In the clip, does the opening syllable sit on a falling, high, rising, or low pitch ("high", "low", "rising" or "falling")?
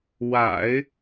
low